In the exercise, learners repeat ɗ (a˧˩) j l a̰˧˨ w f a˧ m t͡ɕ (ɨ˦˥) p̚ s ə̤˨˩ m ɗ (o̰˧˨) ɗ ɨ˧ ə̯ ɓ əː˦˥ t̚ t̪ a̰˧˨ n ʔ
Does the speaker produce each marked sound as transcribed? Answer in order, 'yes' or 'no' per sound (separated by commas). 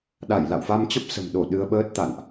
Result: yes, no, no